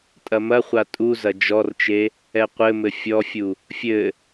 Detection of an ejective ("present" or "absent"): present